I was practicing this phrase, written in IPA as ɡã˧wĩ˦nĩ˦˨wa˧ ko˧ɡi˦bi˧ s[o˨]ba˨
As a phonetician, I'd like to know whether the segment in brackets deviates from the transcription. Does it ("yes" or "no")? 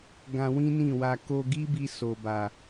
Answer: no